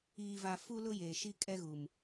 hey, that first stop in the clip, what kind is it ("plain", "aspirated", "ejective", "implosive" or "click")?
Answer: ejective